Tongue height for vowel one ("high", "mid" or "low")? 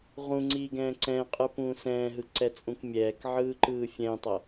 high